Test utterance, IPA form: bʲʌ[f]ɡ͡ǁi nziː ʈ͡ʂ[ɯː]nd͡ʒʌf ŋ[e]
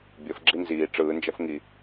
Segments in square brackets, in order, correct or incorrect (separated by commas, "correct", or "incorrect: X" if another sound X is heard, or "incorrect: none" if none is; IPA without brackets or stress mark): correct, correct, incorrect: i